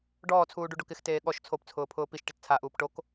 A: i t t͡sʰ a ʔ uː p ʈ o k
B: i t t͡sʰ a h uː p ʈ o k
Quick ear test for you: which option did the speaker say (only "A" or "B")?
A